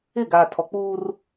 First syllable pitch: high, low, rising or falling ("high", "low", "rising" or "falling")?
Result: falling